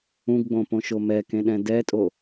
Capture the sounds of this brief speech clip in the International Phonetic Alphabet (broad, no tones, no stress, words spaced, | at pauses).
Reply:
ũɡɡ͡bõpõʃo mɛkẽɗɛ̃ dɛtʼo